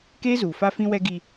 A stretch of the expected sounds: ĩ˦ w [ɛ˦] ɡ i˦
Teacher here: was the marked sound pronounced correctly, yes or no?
yes